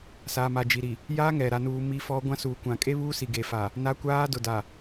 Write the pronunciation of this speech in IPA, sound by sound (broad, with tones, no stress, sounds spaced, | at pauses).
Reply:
s aː˨ m a˨ d͡ʒ i˨ ɾ i˨ | j aː˦ ŋ ɛ˨ ɾ a˨ n uː˨ m i˦ f ɔ˦ ɡʷ ã˦ s uː˨ kʷ ã˨ kʼ e˦ β uː˦ s i˨ ɡ e˨ f a˨ | n a˦ kʷ aː˦ d ʊ˨ d a˨